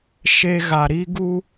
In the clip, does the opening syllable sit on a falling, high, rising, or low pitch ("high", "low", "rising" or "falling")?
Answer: high